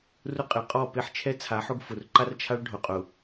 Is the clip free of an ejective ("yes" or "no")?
no